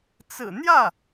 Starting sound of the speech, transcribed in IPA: t͡s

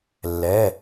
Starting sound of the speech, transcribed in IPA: lː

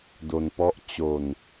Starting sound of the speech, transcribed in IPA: d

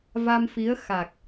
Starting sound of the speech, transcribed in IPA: v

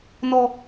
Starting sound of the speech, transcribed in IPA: n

